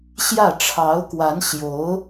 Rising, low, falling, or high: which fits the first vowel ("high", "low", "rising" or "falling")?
falling